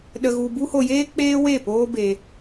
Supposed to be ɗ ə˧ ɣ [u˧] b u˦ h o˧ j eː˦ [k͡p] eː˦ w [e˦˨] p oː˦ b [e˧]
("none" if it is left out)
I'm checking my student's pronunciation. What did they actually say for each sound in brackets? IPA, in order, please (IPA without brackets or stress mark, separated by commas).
u˧, k͡p, e˦˨, e˧